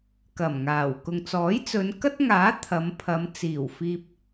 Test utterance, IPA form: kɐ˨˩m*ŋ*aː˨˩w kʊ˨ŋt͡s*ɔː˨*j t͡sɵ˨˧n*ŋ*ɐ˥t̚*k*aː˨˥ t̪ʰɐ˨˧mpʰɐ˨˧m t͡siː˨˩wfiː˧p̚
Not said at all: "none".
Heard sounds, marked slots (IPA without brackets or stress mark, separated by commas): ŋ, ɔː˨˥, k, ŋ